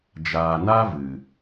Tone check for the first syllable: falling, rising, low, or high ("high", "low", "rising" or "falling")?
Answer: low